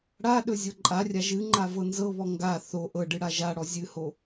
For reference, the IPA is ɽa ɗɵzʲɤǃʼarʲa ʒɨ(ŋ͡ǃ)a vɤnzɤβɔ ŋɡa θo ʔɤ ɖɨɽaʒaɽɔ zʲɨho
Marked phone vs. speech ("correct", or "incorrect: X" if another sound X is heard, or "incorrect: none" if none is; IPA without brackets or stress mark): correct